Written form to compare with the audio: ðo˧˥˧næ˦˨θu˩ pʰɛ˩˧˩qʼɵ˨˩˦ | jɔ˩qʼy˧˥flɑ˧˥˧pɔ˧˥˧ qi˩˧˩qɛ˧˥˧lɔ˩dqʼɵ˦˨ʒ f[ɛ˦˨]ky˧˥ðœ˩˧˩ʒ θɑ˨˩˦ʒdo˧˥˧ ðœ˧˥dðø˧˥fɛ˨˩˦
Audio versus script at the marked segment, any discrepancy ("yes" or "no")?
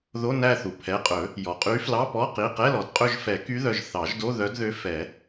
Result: yes